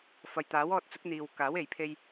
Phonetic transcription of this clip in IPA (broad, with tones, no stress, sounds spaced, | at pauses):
f ɐ˨ j t̪ aː˨˥ w ɔː˧ t̚ t͡s ʊ˨˥ k̚ n̪ iː˨ w k aː˨˥ w e˨ j pʰ e˧ j